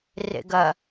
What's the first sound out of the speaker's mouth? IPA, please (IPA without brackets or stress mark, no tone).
r